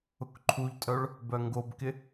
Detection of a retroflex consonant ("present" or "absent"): present